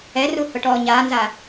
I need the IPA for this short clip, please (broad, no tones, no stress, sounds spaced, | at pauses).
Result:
ɛ r u h ʊ ʈ ɔː ɲ aː n z a